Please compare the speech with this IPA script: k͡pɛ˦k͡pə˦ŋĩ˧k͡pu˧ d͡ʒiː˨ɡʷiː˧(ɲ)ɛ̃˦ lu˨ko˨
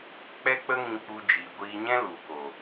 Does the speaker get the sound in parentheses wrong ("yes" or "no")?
no